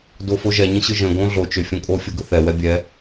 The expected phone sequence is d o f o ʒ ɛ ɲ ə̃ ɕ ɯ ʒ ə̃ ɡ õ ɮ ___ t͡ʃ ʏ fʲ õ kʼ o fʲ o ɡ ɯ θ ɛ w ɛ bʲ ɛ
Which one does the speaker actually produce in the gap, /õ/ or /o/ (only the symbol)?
o